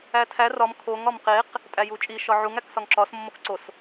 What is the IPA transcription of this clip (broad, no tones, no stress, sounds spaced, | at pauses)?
æ tʰ æ r ɒ m kʰ o ŋ ɒ m q e q | tʼ æ j u t͡ʃʼ i ʃ ɒ ʕ u ŋ æ k s ɒ ŋ ǁ ɒ s mː o k ǀ o s